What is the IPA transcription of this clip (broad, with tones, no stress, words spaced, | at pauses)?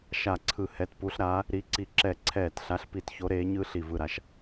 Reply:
ʃa˧˩ǀʰɯ˧˩ hɛ˨˦tpu˨˦ɬ ɾa˨˦ | ɾi˨˦ǀi˧˩ǁɛ˧˩ ǀʰɛː˧˩tɬa˨˦ɬpi˧˩t ço˨˦ɾeː˨˦ɲɯ˨˦ ɬi˧˩vɯ˧˩ɾa˧˩ʃ